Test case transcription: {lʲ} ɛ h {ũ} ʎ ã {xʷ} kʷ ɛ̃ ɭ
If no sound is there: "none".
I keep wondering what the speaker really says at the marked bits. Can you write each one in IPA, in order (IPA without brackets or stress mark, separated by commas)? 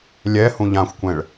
lʲ, ũ, xʷ